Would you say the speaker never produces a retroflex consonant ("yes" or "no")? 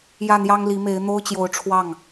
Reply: no